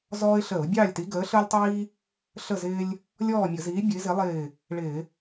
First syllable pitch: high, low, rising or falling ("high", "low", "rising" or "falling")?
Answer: high